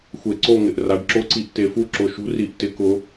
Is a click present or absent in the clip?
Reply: present